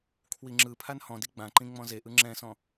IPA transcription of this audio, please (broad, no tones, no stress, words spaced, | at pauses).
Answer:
kʰwiŋ͡ǁɯ pʰanhɔ̃di ɡ͡bãǃĩ ŋ͡mɔ̃zeʔɯ ŋ͡ǁɛ̃sɔ̃